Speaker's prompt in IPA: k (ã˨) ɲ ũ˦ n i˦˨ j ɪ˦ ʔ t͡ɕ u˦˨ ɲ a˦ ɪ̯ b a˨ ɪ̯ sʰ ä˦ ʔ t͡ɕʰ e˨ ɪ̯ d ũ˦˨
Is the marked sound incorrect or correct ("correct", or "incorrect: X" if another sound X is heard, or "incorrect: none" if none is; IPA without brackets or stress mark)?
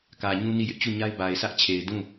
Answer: incorrect: ä˨